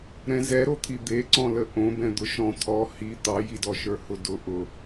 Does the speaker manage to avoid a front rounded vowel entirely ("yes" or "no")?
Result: yes